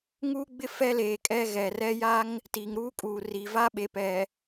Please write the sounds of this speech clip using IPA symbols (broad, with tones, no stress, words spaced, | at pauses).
ŋuː˦ɡ͡bɪ˦ fɛ˦leː˨ kʼɛ˦ɣɛ˨ rɛ˦ja˦ŋ | ti˨ŋɾuː˦ kʼuː˨ri˨ va˦ɓe˨pɛ˨